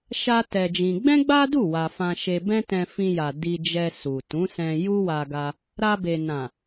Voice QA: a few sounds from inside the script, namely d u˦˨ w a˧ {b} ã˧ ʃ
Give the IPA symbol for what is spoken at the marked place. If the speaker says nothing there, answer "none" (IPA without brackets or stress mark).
f